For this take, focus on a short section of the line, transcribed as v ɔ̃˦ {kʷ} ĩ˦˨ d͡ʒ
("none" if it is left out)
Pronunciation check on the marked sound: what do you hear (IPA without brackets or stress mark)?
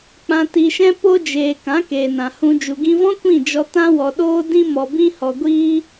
kʷ